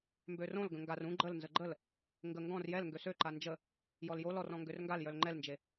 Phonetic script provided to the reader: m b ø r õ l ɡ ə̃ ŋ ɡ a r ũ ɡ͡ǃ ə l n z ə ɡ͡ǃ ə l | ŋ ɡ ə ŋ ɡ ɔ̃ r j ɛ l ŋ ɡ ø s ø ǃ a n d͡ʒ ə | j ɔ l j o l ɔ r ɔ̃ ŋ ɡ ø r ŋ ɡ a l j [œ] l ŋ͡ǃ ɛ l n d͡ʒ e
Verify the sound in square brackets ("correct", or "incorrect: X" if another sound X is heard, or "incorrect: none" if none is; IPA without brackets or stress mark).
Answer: correct